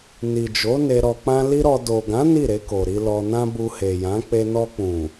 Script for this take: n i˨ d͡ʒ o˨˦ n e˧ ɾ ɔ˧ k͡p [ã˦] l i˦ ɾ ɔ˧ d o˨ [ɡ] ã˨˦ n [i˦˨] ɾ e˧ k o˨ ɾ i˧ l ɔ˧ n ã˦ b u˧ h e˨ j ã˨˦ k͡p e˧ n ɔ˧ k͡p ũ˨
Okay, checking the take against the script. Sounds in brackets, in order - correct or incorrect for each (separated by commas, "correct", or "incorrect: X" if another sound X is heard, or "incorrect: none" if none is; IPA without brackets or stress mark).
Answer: correct, correct, correct